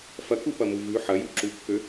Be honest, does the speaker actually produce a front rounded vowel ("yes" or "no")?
yes